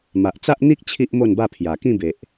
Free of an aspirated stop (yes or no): no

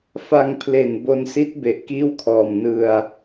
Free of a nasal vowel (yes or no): yes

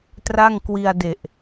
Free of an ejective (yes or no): yes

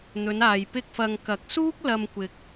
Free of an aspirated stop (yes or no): yes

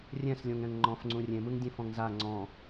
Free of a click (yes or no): no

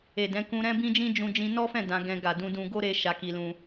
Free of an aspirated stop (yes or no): yes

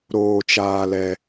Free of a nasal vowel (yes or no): yes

